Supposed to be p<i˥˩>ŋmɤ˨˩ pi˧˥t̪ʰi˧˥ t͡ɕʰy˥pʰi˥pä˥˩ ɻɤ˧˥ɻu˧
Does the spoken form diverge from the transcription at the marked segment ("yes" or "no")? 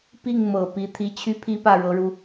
no